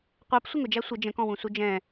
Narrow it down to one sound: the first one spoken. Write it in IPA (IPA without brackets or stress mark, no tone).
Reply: qʷ